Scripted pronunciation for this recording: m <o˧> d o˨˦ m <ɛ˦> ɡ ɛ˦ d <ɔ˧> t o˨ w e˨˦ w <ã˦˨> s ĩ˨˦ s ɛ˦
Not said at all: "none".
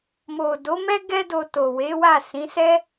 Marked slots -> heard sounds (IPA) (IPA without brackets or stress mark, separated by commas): o˨, ɛ˦, o˧, a˦˨